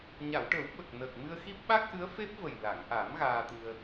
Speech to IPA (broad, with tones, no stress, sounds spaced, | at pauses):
ɲ a˨˩˨ w ʈ ə˨˩˦ w ɓ ə˨˩ k̚ n əː˨˩ k̚ m ɨ˧ ə̯ x i˦˥ p̚ ɓ a˦˥ k̚ ʔ ɨ˧˥ ə̯ f e˦˥ p̚ v ə˨˩ j l a˨˩˨ ŋ ʔ a˨˩˦ m ɣ aː˧ t̪ ɨ˧ ə̯